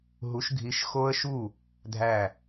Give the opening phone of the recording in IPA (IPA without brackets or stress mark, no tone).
ɦ